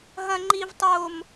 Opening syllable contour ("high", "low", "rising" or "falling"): high